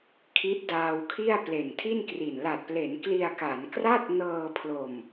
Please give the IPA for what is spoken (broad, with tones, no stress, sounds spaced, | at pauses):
kʰ i˦˥ t̚ d aː˧ w kʰ i˥˩ a̯ p l e˨˩ n tʰ i˥˩ n k r i˨˩ n l a˨˩ t̚ p l e˩˦ n k l i˧ a̯ k a˩˦ n k r a˥˩ t̚ n ɤː˧ pʰ l o˨˩ m